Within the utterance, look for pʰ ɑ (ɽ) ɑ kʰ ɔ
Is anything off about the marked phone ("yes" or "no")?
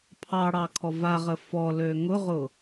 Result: no